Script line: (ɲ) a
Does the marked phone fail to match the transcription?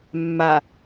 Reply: yes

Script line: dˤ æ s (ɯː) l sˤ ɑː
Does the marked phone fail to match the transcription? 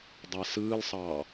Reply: no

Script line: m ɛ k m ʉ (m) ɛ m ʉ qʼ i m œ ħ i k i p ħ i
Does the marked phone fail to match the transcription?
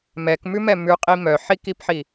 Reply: no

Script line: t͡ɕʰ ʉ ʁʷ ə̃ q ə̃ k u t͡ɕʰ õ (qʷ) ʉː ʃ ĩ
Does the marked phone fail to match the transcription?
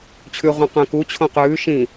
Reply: yes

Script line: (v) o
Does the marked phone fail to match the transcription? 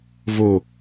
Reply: no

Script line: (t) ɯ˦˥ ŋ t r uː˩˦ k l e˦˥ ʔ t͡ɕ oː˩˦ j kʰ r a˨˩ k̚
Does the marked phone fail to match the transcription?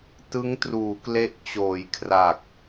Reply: no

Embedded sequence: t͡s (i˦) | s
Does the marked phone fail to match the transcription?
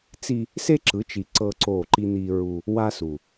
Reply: no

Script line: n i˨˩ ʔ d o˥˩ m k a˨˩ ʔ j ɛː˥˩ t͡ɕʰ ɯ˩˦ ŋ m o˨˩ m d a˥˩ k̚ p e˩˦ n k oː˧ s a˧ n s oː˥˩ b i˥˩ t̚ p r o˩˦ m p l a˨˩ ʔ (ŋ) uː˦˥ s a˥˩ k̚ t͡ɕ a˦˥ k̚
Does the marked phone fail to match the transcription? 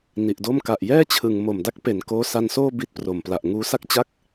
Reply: no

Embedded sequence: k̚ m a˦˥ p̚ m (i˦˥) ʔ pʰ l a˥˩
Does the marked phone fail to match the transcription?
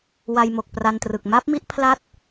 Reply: no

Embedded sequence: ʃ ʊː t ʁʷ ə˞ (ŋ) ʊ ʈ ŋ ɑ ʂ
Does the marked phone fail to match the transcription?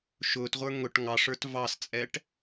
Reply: no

